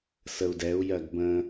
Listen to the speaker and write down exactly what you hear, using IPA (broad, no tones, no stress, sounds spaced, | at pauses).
s ə u̯ d ɛ u̯ j ɜ ɡ b ə̃